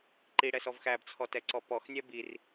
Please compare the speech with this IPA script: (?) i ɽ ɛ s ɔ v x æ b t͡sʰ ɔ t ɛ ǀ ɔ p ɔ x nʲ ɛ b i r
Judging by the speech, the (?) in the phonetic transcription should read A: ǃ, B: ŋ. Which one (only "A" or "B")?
A